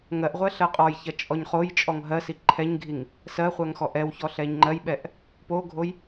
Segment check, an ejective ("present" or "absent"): present